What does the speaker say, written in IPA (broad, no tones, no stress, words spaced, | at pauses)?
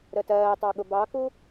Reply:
ɾətɜːtˤɑ ɠʊbɑku